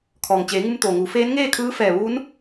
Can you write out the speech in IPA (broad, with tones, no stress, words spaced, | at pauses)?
kʰɔː˩ŋt͡ɕeː˩˧ ŋu˧mt̪oː˩ŋuː˩˧ feː˧˥nŋeː˥˨ kʰɯː˧˥fɛː˧˩ ʋuː˧˥n